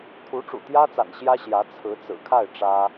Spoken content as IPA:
t̪ʰ u˧˥ ʈ͡ʂ ṵ˨˩ t̪ j ä˥ t͡s a̰˨˩ n ɕ j ä˥ ɕ j ä˧˥ t͡sʰ ɹ̩˧˥ t͡s ɹ̩˨˩ kʰ a˥˩ ɪ̯ ʈ͡ʂ ä˥

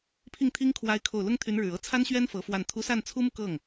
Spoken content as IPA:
pʰ i˥˩ ŋ t̪ʰ i˥ ŋ kʰ w a˥ ɪ̯ kʰ o˥˩ ʊ̯ l ʊ˥ ŋ t̪ʰ y˧˥ n ɻ ɻ̩˨˩ ɤ˥ t͡sʰ a˥ n ɕ ɥ ɛ˥ n f ɤ˧˥ f w a˥˩ n t̪ʰ u˧˥ s a˥˩ n t͡sʰ u˥ m u˨ k ɤ˥˩ ŋ

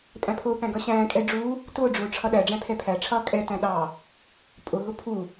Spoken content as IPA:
pʼ æ̃ pʰ ʊː p æ̃ ɡ ʌ ɕ æ̃ː kʼ ɛ ɖ͡ʐ u | t ʊː ɖ͡ʐ ʊː ʈ͡ʂʰ ʌ ɗ æ ɖ͡ʐ æ̃ pʰ ɛ pʰ æ ʈ͡ʂʰ ʌː kʼ ɛ t æ̃ ɗ ɑ | pʼ ʊ ɦ ʊ pʰ u

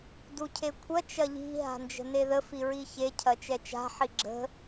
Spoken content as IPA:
d u cʰ e kʷʰ ɐ t͡ʃ ɐ ʎ i̤ ɦ a̤ n d͡ʒ ə̤ n e ð ə f i ɹ i ç e cʰ ɐ t͡ʃ ɛ t͡ʃ a̤ ħ i ɡ͡ǁ ə̤

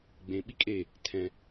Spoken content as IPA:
ɡ͡b ẽ ɓ i kʼ e | tʰ ɛ̃

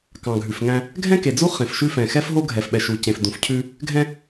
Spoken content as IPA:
k ɑ̃˨ ɡʱ ʉ˨ f ŋ æ̃˦ | ɡʱ ɛ̃˦ k e˨ d͡z u˦ χ ẽ˨ f ʃ ʉ˦ f ɛ̃˨ x ɛ˦ f ɦ o˦ ɡʱ ɛ˨ f ɓ ɛ˨ ʃ u˨ c ẽ˨ f d ũ˨ f cʰ ʉ˦ | ɡʱ ɛ̃˦

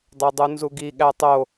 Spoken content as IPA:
dˤ o dˤ u n z u ɡ i ɠ æ tˤ o

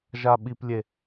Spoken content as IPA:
ʒ a ɓ i p lʲ e

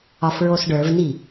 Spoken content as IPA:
ɒ f ɹ o s ɖ ə˞ v n i

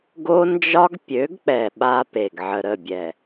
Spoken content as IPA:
ɡ o˦ n d͡ʒ ɒ˦ ɡ pʲ ø˨˦ ɡ k͡p ɛ˨ ɓ a˦ p e˨ ɡ ʕ ə˨ ɾ ə˦˨ bʲ ɛ˨

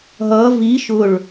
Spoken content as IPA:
ɦ ʌ v i ʃ ʊ ɭ

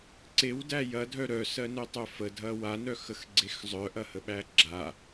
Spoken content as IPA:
ǀ e w d æ j ɐ dʱ œ ɾ œ s ɜ n œ tˤ œ f ə dʱ ɐ w a n œ x ə x ɡ͡ǀ e x zˤ œ ʔ ɐ h ə ɓ æ ɡ͡ǁ a

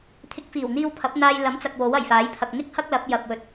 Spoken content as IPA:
t̪ʰ ɪ˨˥ k̚ f iː˨˩ w n̪ iː˧ w pʰ ɐ˨˥ p̚ n̪ aː˧ j l ɐ˨˥ m t͡s ɐ˨ k̚ w o˨˥ w ɐ˨˩ j f aː˨˥ j pʰ ɐ˨ k̚ n̪ ɪ˥ k̚ h ɐ˥ k̚ l ɐ˨˥ p̚ j ɐ˨ p̚ w ɵ˨ t̚

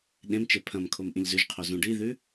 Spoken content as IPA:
ɗ ẽ m t͡ʃ e pʰ ɐ̃ m kʰ o m ʔ ĩ ʎ z ʉ ʒ qʰ o z ũ ɖ i ð ʉ

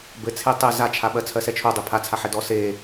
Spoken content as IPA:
b ɘ t͡sʰ e tˤ e z a t͡ʃʰ a ɓ ɜ t͡sʰ ɜ s ɛ t͡ʃʰ o dˤ e pʰ a t͡sʰ a ħ ɛ d ɔ s e

